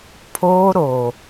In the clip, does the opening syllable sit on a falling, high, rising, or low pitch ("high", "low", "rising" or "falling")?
high